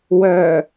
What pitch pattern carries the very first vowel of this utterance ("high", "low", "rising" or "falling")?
low